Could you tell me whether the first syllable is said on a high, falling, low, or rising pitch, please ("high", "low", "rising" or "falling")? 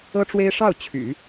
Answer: high